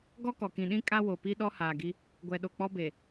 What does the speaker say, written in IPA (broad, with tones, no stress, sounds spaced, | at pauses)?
ɡ ɔ˦ k ɔ˨ k ĩ˨ ɗ ĩ˦ kʼ a˦ w o˨ p i˦ ɗ ɔ˦ h aː˨ ɡ i˦ | ɡʷ ɛ˨ ɗ o˨ k͡p ɔ˦ b e˨